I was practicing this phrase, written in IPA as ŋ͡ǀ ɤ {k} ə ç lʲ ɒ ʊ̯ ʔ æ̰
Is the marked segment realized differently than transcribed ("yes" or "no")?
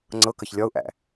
no